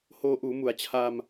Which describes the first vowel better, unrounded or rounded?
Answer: rounded